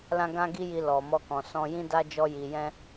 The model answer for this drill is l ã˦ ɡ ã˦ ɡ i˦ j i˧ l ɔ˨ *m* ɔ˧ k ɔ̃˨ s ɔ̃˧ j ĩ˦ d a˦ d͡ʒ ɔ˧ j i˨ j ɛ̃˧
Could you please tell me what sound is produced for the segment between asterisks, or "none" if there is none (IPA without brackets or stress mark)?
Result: m